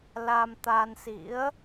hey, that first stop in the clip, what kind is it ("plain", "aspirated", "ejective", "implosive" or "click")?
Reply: plain